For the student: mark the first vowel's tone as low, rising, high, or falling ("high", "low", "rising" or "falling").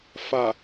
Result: low